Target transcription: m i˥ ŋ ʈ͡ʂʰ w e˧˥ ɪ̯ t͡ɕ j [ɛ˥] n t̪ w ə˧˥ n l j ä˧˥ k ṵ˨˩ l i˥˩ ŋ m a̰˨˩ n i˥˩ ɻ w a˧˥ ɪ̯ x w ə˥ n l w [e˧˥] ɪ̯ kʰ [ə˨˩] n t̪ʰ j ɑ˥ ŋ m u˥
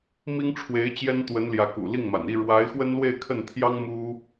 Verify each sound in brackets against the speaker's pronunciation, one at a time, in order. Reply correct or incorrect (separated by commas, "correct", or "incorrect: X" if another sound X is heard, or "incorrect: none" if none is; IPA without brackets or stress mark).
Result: correct, incorrect: e˥˧, incorrect: ə˥˩